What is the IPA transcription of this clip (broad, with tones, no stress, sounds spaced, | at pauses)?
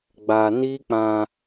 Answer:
ɡ͡b a˧ n i˦ k͡p ã˧